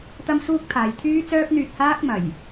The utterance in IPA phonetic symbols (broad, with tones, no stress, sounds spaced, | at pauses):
t̪ ɐ˥ m s uː˥ k̚ t̪ʰ aː˨ j t̪ʰ yː˥ t͡s œː˥ p̚ n̪ yː˧ t̚ h aː˥ k̚ m ɐ˨˩ j